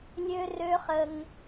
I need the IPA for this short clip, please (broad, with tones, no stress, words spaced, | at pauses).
lʲø˦rø˦ χə˦ŋ